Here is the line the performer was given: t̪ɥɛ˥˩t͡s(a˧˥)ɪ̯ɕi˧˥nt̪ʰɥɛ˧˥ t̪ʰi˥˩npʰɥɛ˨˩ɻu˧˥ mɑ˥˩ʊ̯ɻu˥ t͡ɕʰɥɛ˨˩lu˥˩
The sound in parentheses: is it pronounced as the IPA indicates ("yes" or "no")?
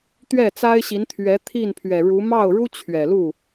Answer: no